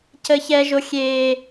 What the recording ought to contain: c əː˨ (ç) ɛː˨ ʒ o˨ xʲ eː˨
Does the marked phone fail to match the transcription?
no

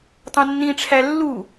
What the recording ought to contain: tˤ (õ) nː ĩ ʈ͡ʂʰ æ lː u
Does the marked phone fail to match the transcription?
no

